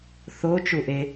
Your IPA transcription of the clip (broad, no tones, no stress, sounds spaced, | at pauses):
θ o t͡ʃ u ʔ e